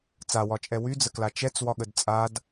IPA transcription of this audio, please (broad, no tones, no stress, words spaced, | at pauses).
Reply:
t͡sawɒt͡ʃʼɛ wyd͡zəkla t͡ʃɛt͡swɒɠəd t͡sʼad